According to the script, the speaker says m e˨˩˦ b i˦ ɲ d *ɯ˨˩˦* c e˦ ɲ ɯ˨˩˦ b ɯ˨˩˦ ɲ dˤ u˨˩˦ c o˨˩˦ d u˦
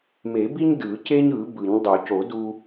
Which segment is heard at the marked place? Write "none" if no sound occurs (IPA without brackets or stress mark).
ɯ˨˩˦